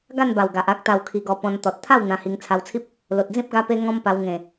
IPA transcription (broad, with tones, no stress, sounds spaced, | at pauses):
ɡ a˥˧ n b a˨˩ w ɡ a˨ ʔ a˦ k̚ t̪ a˧ w kʰ i˧ ɡ ɔ˧ p ɔ̃˧ n t̪ ɔ˨ t̚ t̪ʰ a˥˧ w n̪ ã˧ h i˧ ŋ t͡sʰ a˧ w t͡sʰ i˦ p̚ | l o˨ t̚ d͡z ĩ˦ p̚ ɡ a˧ p e˧ ŋ ɔ̃˦ m p a˧ w ŋ ẽ˨˩